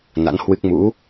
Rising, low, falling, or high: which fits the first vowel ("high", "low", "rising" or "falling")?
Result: rising